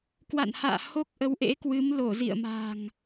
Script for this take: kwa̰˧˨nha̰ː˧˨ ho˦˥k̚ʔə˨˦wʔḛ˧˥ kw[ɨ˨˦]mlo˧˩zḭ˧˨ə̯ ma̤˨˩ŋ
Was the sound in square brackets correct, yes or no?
yes